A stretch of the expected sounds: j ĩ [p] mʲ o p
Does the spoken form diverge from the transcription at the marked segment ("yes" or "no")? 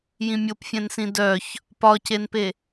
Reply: yes